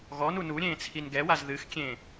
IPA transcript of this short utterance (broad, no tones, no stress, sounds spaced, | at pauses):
ɣ ɔ n u n u ɾʲ ẽː t͡sʰ i n ɡ ɛ w a z ð ɨ x kʲ ẽ